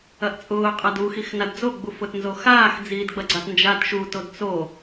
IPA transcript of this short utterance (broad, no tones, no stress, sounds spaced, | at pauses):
ɐ ʔ t͡sʼ ʊː qʼ a d u x i x n a d d͡z o ɡ͡b u f ʊ t n z o x aː x d͡z iː d ɡ͡b ɐ ɡ͡ǀ a t n d͡ʒ a t ʃ u t o d t͡s o